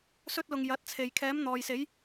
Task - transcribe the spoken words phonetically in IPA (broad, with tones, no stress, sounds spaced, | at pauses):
s ɵ˥ t̚ l ʊ˧ ŋ j ɐ˨˥ t̚ t͡sʰ e˨ j kʰ ɛː˨˧ m n̪ ɔː˨ j s e˨˧ j